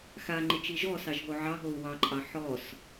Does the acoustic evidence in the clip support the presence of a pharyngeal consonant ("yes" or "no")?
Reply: yes